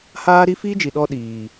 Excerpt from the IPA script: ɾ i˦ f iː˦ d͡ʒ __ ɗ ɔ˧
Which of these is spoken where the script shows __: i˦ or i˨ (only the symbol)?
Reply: i˨